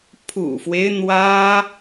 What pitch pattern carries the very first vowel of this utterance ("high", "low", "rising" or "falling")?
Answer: low